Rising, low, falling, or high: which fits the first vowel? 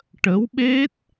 rising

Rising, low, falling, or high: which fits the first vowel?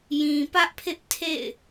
low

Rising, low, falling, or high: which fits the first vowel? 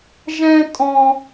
high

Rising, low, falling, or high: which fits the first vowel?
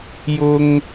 high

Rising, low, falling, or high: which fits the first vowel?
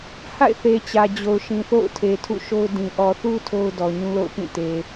falling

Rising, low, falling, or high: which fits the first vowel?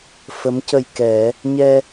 rising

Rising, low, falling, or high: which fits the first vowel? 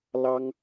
high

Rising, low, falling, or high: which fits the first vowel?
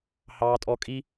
high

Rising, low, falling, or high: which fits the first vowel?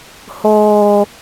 high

